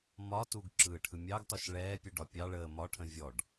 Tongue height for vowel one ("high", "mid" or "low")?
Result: low